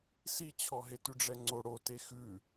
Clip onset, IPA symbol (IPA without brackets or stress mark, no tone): s